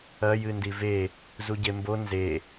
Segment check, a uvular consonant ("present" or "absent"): absent